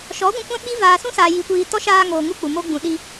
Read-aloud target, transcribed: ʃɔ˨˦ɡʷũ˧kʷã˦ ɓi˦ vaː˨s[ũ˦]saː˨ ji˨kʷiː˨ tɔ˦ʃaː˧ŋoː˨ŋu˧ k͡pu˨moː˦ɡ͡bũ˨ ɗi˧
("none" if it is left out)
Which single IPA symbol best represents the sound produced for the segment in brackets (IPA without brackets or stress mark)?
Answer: ũ˦